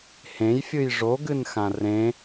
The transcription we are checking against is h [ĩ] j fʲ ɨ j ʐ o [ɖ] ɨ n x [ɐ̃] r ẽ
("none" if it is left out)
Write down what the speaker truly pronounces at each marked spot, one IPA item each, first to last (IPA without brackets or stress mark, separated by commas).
ẽ, ɡ, ã